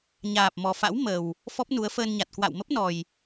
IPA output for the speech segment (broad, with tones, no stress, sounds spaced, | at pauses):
ɲ aː˨˩ p̚ m ɔ˨˩ f a̰˧˥ w m ə˨˩ w | f ɔ˦˥ p̚ n u˨˦ ə̯ f əː˧ n ɲ a˨˩ t̚ k w a̰˧˨ w m ə˦˥ p̚ n ɔ˨˩ j